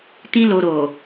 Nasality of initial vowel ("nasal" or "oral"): nasal